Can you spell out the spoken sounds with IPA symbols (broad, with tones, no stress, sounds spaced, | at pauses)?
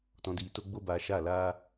t ɔ̃˧ d iː˧ t o˦ ɡ͡b o˦ b aː˧ ʃ a˦˨ l aː˦